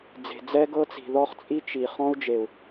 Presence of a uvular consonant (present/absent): present